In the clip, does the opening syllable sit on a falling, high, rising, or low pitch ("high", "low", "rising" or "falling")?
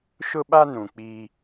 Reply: high